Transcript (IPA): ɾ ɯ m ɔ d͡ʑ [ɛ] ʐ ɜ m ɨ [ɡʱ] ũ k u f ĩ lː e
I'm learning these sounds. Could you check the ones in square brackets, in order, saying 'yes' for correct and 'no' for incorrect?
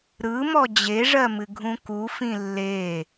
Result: no, yes

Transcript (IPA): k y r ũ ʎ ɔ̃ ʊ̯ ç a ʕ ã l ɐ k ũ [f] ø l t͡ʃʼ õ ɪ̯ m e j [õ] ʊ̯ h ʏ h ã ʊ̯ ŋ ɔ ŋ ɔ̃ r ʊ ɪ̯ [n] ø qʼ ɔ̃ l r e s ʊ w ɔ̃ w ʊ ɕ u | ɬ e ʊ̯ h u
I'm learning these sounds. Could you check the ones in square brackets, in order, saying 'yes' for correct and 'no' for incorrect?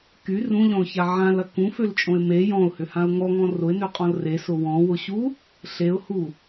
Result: yes, no, yes

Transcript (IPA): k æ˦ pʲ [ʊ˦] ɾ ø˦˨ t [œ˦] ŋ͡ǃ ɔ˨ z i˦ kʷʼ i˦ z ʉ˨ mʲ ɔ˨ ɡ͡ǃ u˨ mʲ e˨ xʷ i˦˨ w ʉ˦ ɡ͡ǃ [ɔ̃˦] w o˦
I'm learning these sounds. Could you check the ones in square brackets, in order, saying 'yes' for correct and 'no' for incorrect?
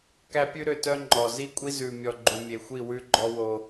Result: no, yes, no

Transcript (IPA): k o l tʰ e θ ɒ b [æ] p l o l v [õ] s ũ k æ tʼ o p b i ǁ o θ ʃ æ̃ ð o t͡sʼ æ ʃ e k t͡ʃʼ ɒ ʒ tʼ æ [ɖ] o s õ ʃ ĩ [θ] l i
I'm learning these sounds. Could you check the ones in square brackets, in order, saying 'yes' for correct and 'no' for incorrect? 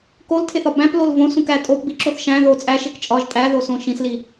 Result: no, yes, no, no

